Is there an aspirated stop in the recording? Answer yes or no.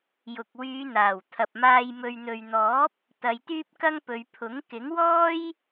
yes